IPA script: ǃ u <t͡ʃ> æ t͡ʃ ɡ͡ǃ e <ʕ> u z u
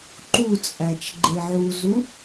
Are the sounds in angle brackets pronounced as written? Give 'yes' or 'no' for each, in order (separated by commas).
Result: no, yes